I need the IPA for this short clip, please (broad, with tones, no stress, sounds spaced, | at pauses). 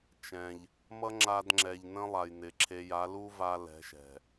t͡ʃ ɛ̃˨ ʎ | m ʌ˦ ŋ͡ǁ a˧ d ŋ͡ǁ ɛ˨ ʎ n ə̃˦ lˠ a˨ j n ɪ˨ ǁʰ e˧ j a˨˦ l u˦ v a˧ l ɛ̤˨˦ ʃ ɛ̤˨